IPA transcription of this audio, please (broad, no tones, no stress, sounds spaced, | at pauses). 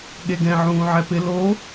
ɠ e ɡ ɛ̃ ʕ ũː ʕ ɛ p ɪ l o